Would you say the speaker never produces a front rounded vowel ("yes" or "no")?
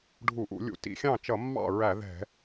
yes